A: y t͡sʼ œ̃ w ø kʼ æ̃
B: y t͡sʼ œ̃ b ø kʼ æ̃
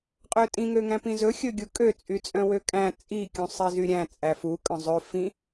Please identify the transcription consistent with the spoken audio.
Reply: A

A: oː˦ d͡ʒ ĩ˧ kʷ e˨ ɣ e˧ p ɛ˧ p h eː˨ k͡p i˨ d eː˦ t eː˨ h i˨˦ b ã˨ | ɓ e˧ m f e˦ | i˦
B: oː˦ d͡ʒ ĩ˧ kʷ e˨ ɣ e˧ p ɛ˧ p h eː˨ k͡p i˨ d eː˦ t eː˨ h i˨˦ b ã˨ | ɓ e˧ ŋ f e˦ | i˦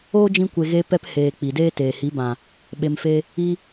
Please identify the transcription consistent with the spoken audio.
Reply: A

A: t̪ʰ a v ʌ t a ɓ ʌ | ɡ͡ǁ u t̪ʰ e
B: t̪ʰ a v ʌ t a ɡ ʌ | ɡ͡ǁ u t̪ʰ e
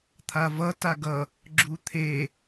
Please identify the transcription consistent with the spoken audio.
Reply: B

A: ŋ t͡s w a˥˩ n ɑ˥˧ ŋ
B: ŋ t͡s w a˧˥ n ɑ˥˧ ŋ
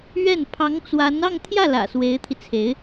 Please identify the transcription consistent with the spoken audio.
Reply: B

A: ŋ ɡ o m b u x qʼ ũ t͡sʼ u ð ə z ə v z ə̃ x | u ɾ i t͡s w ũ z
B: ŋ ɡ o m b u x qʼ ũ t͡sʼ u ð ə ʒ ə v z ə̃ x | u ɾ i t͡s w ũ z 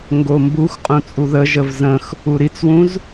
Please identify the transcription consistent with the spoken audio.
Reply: B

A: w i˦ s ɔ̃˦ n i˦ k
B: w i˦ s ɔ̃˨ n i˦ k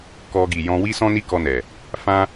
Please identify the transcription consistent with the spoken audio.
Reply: A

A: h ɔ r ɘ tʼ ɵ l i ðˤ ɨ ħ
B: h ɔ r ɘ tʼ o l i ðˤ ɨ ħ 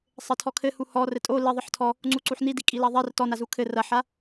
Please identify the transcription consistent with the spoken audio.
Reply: B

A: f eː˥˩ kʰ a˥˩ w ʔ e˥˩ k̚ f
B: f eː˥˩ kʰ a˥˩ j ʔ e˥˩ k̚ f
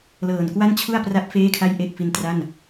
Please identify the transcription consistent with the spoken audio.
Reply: B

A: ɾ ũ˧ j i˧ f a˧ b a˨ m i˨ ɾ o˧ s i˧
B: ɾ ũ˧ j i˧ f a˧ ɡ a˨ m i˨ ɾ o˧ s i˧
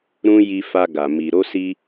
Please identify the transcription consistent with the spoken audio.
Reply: B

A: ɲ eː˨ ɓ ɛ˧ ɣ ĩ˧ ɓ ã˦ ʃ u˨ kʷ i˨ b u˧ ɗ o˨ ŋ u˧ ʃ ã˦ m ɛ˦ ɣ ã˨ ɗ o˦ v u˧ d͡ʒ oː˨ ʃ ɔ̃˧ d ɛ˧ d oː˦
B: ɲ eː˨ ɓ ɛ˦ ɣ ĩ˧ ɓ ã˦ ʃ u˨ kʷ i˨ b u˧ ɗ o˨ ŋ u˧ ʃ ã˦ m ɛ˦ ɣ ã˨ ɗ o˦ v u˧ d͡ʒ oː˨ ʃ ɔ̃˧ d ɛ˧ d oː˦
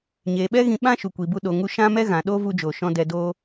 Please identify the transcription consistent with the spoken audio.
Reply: B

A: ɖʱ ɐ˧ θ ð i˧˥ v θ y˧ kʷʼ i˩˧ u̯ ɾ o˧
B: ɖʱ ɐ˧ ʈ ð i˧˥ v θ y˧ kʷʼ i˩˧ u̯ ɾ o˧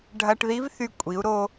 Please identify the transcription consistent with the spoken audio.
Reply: B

